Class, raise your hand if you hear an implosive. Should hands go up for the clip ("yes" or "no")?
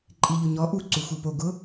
no